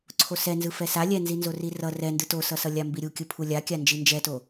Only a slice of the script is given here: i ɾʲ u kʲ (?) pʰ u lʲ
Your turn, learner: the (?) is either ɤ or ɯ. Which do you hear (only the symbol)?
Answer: ɯ